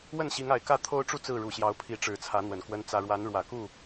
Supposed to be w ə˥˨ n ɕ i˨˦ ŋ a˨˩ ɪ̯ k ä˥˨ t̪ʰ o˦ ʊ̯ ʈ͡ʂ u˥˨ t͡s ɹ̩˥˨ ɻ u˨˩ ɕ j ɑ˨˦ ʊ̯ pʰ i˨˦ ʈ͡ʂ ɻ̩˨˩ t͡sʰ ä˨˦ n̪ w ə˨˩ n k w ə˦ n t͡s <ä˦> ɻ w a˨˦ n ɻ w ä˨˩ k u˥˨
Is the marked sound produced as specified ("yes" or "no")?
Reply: yes